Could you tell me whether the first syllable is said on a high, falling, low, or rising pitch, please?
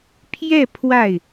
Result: falling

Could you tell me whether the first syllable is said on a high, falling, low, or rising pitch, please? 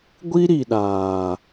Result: high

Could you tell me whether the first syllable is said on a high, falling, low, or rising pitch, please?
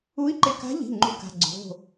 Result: rising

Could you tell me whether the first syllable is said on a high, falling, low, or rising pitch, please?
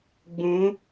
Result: rising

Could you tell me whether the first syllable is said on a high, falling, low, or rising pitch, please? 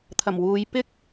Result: low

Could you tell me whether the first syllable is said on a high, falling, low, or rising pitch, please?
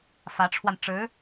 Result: rising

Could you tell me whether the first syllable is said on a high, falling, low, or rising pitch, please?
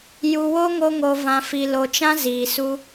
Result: low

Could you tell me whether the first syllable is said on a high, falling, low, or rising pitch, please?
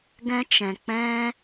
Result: high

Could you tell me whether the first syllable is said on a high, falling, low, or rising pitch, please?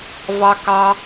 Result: low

